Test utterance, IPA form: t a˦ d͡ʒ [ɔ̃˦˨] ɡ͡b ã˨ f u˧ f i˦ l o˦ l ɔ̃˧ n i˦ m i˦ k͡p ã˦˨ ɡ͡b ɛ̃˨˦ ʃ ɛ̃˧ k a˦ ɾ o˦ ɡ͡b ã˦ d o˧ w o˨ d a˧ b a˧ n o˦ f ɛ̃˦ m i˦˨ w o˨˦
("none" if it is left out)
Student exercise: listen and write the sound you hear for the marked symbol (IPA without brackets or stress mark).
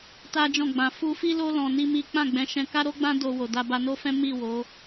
ɔ̃˦˨